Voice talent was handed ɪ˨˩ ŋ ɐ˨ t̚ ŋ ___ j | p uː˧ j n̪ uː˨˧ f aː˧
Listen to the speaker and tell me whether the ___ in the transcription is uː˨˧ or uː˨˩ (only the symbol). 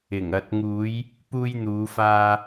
uː˨˧